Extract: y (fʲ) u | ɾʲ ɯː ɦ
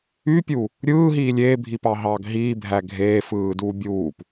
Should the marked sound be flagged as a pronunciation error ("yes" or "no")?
yes